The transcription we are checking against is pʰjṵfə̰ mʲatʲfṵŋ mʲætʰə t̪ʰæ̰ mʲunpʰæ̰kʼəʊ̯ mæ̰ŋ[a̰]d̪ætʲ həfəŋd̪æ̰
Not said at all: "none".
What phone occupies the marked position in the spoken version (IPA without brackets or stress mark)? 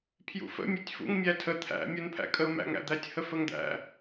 æ̰